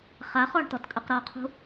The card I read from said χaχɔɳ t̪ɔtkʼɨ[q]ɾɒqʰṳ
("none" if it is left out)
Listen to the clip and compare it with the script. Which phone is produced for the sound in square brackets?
q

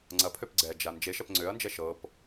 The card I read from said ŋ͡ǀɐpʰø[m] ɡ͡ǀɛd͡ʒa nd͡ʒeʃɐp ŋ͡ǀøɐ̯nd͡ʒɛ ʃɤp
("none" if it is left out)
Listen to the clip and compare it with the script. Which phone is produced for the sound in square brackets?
p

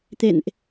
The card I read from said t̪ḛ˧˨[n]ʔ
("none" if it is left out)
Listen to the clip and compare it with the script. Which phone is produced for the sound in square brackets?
n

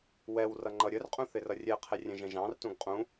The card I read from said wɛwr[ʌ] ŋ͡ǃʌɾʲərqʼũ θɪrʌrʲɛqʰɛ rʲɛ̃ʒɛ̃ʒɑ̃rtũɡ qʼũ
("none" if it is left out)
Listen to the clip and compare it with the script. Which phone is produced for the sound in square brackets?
ʌ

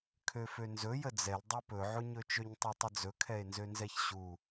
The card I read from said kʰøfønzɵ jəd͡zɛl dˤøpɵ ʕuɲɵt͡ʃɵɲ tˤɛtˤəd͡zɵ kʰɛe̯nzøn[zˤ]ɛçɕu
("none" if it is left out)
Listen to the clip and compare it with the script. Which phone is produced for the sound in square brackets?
z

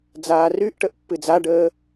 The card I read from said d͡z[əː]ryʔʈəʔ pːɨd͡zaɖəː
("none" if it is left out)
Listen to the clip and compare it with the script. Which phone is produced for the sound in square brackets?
aː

